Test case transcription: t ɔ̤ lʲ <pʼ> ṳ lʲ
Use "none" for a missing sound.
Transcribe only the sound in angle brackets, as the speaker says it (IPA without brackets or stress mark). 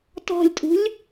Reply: tʼ